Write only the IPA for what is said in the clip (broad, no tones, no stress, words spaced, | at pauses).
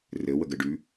rɘ wəɡɘɖʉ